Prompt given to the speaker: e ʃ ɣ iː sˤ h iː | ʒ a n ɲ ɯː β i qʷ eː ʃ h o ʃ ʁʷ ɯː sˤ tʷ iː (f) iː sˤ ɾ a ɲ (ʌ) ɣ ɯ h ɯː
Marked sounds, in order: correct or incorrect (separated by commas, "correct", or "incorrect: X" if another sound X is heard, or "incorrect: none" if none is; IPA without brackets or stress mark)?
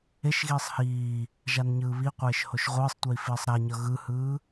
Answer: correct, correct